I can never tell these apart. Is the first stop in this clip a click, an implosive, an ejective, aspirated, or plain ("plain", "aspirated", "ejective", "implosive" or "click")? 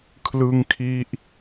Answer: aspirated